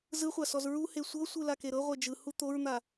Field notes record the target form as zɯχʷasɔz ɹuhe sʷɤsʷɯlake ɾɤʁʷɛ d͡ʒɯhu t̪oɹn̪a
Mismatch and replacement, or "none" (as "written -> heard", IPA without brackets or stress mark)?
none